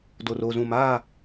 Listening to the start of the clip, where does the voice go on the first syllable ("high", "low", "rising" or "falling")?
low